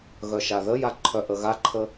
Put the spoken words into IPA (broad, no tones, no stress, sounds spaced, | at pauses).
ɣ œ ʃ a ð ə j a ǃʰ œ ʔ ə ɣ a ǃʰ ə